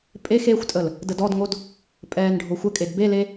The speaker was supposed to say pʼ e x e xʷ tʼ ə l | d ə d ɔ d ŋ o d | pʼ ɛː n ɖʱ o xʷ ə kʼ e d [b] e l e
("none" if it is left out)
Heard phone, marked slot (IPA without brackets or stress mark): b